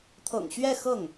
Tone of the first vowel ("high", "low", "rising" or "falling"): low